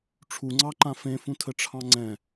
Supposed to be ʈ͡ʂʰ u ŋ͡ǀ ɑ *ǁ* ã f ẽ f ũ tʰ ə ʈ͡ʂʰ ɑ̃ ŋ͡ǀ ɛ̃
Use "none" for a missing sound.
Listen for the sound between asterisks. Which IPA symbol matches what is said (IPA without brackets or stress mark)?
ǃ